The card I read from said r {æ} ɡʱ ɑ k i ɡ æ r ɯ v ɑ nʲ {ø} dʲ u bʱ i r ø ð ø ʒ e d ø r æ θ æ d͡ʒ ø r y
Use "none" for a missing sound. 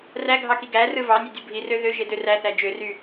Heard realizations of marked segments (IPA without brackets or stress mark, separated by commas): æ, ø